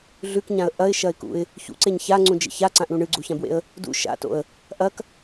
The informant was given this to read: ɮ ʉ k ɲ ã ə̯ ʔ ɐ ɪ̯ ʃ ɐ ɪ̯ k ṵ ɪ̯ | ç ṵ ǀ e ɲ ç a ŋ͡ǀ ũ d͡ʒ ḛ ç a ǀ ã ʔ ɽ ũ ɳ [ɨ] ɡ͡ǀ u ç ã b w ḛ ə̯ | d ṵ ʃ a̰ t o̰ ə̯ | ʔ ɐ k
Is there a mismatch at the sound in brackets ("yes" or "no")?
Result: no